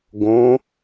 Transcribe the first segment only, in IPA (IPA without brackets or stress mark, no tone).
ɡ